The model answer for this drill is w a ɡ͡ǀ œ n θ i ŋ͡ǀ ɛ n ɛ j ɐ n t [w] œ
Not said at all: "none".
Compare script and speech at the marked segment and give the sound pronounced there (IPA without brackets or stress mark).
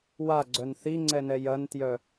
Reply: j